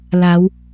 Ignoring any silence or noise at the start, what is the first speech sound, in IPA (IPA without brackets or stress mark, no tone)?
l